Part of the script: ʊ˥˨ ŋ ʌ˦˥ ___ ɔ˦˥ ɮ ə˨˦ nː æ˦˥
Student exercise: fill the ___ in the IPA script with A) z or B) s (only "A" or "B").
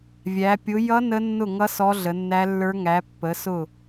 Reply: B